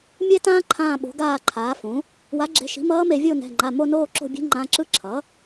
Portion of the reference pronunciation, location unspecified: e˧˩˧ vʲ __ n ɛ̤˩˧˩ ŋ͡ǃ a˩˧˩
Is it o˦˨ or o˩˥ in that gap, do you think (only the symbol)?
o˦˨